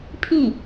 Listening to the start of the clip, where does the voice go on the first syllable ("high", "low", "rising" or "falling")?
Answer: falling